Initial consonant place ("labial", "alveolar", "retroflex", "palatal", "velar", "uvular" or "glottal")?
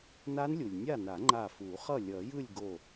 alveolar